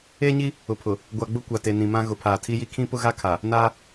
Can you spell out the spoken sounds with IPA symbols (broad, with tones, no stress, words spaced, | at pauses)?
eː˦ɲi˦ | ʊ˨pʰʊ˨ | ɡʷa˨ɡ͡bʊ˦ kʷa˨te˨ nĩ˨mã˦ ɣʊ˨˦pʰaː˨tʰi˦ji˦ kʰĩ˦pʊ˦ɣa˦kʰa˨ | naː˦